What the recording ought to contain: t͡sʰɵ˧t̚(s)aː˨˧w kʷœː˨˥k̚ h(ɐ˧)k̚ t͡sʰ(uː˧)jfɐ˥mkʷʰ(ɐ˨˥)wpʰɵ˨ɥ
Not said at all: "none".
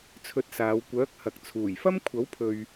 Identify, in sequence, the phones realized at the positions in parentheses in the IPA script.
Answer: s, ɐ˨, uː˨˩, ɐ˨˥

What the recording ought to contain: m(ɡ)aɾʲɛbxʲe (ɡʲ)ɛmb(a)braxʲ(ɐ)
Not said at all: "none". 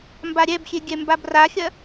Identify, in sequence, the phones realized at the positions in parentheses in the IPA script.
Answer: b, ɡʲ, a, ɐ

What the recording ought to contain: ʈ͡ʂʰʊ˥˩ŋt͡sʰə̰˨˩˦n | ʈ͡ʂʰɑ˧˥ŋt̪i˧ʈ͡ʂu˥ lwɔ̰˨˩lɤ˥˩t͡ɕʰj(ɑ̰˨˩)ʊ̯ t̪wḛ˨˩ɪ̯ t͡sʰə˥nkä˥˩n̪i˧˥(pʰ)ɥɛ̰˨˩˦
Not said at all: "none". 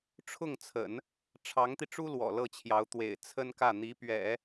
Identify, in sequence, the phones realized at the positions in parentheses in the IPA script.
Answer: ɑ˧˥, p

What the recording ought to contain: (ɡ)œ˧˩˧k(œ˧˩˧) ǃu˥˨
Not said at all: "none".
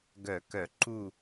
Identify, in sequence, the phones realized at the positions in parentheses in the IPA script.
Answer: ɡ, œ˧˩˧

